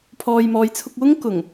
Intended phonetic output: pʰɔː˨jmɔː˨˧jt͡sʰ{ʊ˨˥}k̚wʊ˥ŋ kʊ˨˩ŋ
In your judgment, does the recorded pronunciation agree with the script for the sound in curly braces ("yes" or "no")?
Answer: no